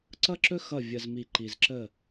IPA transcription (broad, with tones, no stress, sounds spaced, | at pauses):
ǀ ʌ˦ ǁ ɵ˦ x ʌ˦˨ vʲ ə˨ z m i˨ ǃ i˨ z ǁ ə˦˨